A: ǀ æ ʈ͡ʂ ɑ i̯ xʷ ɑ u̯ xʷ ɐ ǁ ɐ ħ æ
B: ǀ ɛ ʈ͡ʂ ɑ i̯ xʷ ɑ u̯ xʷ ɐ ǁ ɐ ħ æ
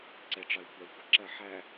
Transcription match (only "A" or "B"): B